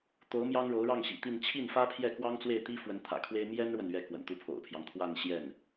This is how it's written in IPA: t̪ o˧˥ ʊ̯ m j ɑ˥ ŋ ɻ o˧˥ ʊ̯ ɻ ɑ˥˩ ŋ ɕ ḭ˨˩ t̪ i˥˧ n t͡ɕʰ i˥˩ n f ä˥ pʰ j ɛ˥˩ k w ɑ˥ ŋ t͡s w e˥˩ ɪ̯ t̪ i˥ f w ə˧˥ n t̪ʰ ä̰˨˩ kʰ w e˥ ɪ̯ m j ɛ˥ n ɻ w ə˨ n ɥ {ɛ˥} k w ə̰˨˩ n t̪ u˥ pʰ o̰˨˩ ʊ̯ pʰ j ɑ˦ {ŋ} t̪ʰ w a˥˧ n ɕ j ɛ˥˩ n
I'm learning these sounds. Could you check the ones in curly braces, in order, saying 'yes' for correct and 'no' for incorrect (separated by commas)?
no, yes